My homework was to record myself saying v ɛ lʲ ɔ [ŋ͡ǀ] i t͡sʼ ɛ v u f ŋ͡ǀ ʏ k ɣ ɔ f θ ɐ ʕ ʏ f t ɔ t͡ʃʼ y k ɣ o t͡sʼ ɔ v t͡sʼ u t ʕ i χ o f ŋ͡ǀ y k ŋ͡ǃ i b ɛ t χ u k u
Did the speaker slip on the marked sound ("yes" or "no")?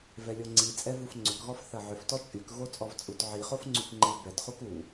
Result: no